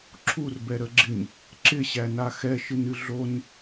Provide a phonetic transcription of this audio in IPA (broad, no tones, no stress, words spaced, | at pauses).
ǁʰurbɛɾəɡ͡ǁɪɲ | ǁɪɕæna xɛʃɨnɨ ɮon